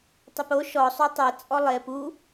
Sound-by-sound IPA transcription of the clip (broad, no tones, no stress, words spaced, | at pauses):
tˤepo ʃɔ sˤytˤɛ t͡sʼɔlˠe pu